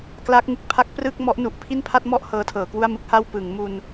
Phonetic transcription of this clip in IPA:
kla˦˥k̚ŋɯ˨˩k̚ pʰa˦˥k̚prɯ˥˩k̚ mɔ˦˥ʔnu˨˩ʔ pʰi˥˩npʰa˥˩t̚mɔ˥˩ʔ hɤː˦˥tʰɤː˩˦kwu˥˩a̯mɯ˦˥k̚ ha˧w pɯ˩˦ŋ mu˧n

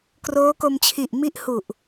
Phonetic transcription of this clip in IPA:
kroː˦˥ko˧mt͡ɕʰi˨˩ʔ mi˦˥ʔ hu˨˩ʔ

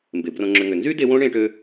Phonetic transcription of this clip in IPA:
mbe˩ brõ˨ŋ͡ǁʏ˨ŋʏ˩ nzy˥ de˦wõ˥ ɳẽ˦ʈø˦

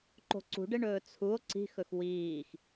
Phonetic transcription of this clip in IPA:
ǃo̤ǀṳɖeɳɵː t͡sʰuo̯ ǀi̤xɵx wiːx

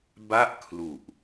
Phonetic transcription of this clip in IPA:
ba˥˩ʔkʰlu˨˩ʔ

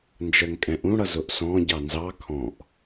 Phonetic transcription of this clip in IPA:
nd͡ʒɜŋkʼɛ̃ʔũɽʌ zʊʔsɔ̃ ɟɑnzɑ kʰɔ̃ʔ

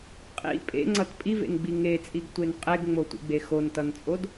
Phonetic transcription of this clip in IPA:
qʼḭ pʼḛŋ͡ǀʌt pʼivḛnɡ͡bi ŋet͡sʼiɡtʷen qʼeɡŋ͡motʷḭɡ͡be xontʌnt͡sʼod

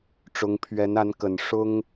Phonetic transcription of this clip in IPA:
ʈ͡ʂʊ˧˥ŋ pʰɥɛ˧˥na˧˥nkə˨˩n ʂʊ˥ŋ

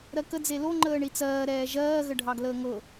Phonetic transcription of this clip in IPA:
ɾɜkə d͡zelo ŋ͡ǃəːɳit͡sɜː ɾɛːʒɜː ɣəɖʱɑɡləːŋɤ

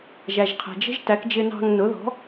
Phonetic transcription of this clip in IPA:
ʒæ˩ʒqʰæ̤˩d͡ʒə̤˥ʒ tæ˩˥kd͡ʒɪ˧ nɑ̤˧ŋnʊ˩˥ðɔ̤˩˥

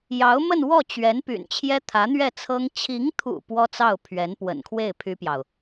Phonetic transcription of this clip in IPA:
jɑ˧˥ʊ̯ mə˥˧nwɔ˥˩t͡ɕɥɛ˧˥n py̰˨˩n t͡ɕʰjɛ˥t̪ʰä˧˥n̪ɥɛ˥˩t͡sʰɤ˥ŋ t͡ɕʰi˧˥ŋt̪ʰṵ˨˩ pwɔ˥t͡sɑ˥˩ʊ̯ pʰɥɛ˧˥npwə̰˨˩nkʰwe˥˩ɪ̯ pʰy˥pjɑ˨ʊ̯

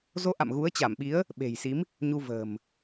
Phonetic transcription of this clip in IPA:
zo˨˦ʔa̰˧˨m ɣu˨˦ə̯t͡ɕa˧˩mɓi˨˦ə̯ | ɓe̤˨˩jsi˨˦m | ɲu˧və̤ː˨˩m

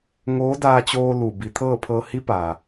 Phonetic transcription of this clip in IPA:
ŋoː˧˥daː˧t͡ɕoː˧ lu˧˩ bi˩˧t̪ʰɤː˥˨pʰɤː˧ hi˧˥pa˩

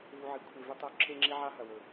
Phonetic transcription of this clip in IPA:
vu˧ʕi˨kʷʰe˧ vɨ˦tˤo˦ ǁʰe˦ŋ͡ǁi˦ʕa˦ ɦɐ˨wɵ˨

